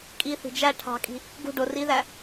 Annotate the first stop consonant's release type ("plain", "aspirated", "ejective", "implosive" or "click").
ejective